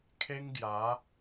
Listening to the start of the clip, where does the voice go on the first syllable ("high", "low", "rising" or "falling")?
high